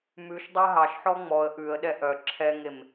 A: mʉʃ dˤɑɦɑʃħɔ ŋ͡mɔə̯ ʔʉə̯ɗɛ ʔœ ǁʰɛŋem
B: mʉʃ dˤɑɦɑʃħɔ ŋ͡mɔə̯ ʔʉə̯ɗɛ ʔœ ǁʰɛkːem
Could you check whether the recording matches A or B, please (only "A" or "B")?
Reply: A